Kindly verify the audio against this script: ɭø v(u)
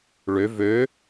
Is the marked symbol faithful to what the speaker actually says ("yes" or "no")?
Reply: no